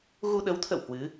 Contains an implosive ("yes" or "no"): yes